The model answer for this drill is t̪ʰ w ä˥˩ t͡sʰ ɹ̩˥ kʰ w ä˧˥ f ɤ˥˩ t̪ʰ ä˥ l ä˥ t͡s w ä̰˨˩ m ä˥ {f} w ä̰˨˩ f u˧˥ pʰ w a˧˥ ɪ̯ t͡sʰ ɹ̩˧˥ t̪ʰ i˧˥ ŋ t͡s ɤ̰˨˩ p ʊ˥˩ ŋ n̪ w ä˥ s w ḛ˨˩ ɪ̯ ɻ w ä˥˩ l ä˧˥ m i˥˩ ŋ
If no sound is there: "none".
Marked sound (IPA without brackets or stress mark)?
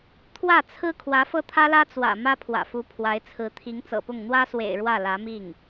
pʰ